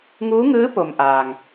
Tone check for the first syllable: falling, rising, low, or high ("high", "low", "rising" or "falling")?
rising